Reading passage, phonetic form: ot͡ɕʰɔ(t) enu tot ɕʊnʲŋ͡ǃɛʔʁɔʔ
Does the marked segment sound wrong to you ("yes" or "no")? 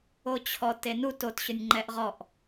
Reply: no